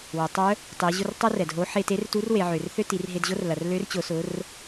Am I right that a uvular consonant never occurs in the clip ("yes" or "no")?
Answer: yes